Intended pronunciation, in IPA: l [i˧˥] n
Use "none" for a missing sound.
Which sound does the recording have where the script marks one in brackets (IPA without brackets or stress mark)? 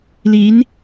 i˧˥